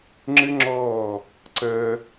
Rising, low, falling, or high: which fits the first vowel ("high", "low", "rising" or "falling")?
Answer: high